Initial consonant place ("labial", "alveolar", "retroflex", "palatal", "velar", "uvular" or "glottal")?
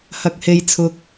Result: glottal